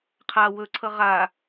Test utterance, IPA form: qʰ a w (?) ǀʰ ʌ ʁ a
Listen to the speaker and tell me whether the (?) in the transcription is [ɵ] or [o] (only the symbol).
ɵ